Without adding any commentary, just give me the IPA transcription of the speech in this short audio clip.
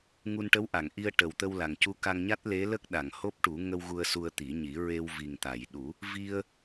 ŋ u˧ n ʈ ə˧˥ w ʔ a˨˩˨ ŋ ʔ i˧ ə̯ ʈ ə˨˩ w t̪ ə˧ w l a˨˩ ŋ c u˧˥ k a˧ ŋ ɲ a˦˥ t̚ l e˧˥ l ə˦˥ k̚ ɗ a˨˩˨ ŋ h o˦˥ p̚ ʈ u˨˩˦ ŋ ə˧ w ɣ u˧ ə̯ s u˧ ə̯ t̪ i˨˩˦ ɲ i˨˩˦ ɹ e˧ w v i˨˩ ŋ t̪ a˨˩˨ j ɗ u˨˩˦ | v i˧ ə̯

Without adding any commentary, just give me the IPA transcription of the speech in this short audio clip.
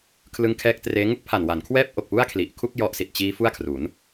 kʰ l ɯ˦˥ ŋ kʰ ɛː˦˥ k̚ t r eː˦˥ ŋ u˦˥ k̚ pʰ a˨˩ n w a˩˦ n kʰ w ɛː˦˥ p̚ ʔ o˨˩ k̚ p u˥˩ a̯ kʰ l i˨˩ ʔ kʰ u˥˩ k̚ j ɔ˦˥ ʔ s i˨˩ t̚ t͡ɕ iː˦˥ f u˥˩ a̯ kʰ r u˩˦ n

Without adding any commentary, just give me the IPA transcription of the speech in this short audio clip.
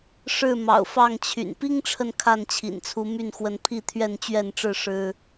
ʂ ɻ̩˥˨ m ɑ̰˨˩ ʊ̯ f ɑ˥˨ ŋ t͡ɕʰ y̰˨˩ n p i˦ ŋ ʈ͡ʂʰ ə˨ n kʰ a˥˨ n t͡ɕʰ ḭ˨˩ n t͡sʰ u˨˦ m y˥˨ n x w ə˨˦ n pʰ i˥˨ t̪ʰ ɥ ɛ˥˨ n t͡ɕ ɥ ɛ˥˨ n ʈ͡ʂ ɻ̩˥˨ ʂ ɻ̩˦

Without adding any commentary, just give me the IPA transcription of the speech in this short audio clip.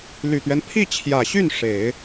l y˨˩ t̪ ɥ ɛ˦ n pʰ i˥˩ t͡ɕʰ j ä˨˩ ɕ y˥˩ n ʂ e˨˩˦ ɪ̯

